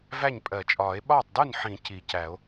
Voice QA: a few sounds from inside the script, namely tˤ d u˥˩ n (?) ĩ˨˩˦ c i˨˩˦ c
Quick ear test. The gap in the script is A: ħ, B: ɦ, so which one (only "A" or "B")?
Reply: A